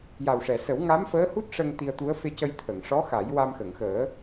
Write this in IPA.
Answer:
j a˨˩ w ʂ ɛ˨˩˨ s ə˨˩˦ w ŋ a˧˥ m f əː˧˥ h u˦˥ t̚ ʂ ə˧ ŋ t̪ i˧ ə̯ t̪ u˧˥ ə̯ f e˧ c ə˧ j t̪ʰ ə˨˩˨ ŋ ʂ ɔ˧˥ x a˨˩˦ j w a˧ m x ə˨˩˨ ŋ x əː˨˩˦

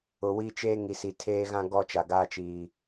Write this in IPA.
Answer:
ʊ˨ w i˦ t͡ʃ eː˦ ŋ i˨ s i˨ tʰ eː˦ ɣ ã˦ ɡ ɔ˦ t͡ʃ a˨ ɡ aː˦ t͡ʃ iː˨

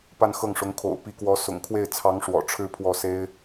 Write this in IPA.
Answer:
p a˥˧ n x ɤ˥˩ ŋ ʂ ʊ˧˥ ŋ kʰ o̰˨˩ ʊ̯ p i˧˥ k w ɔ˧˥ s ʊ̰˨˩ ŋ kʰ w e˥˩ ɪ̯ t͡sʰ ɑ˧˥ ŋ ʂ w ɔ̰˨˩ ʈ͡ʂʰ ɻ̩˥ pʰ w ɔ˥˩ s e˥ ɪ̯

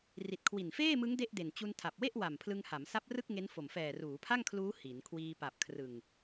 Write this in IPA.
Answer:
r i˨˩ t̚ kʰ w i˨˩ n f eː˥˩ m ɯ˦˥ ŋ d e˥˩ ʔ d e˨˩ n t͡ɕ u˧ n tʰ a˨˩ p̚ w e˥˩ ʔ w a˨˩ m pʰ l ɯ˧ ŋ h a˩˦ m s a˦˥ p̚ r ɯ˥˩ k̚ ŋ e˦˥ n f o˨˩ m f ɛː˨˩ r uː˩˦ pʰ a˥˩ ŋ kʰ l uː˦˥ h i˩˦ n kʰ w iː˧ p a˨˩ p̚ kʰ r ɯ˨˩ ŋ

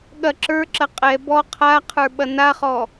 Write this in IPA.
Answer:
ɠ ɐ ǁ ə˞ ǁ ɐ qʼ ɛ b ɔ qʰ a qʰ ə˞ ɓ ɐ n a χ ɔ

